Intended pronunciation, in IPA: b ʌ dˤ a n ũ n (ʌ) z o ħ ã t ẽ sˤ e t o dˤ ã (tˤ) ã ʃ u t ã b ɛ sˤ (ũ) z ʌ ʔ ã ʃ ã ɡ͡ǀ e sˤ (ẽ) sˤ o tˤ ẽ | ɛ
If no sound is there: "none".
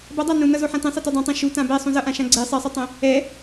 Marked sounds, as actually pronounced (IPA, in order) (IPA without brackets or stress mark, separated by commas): ʌ, tˤ, ũ, e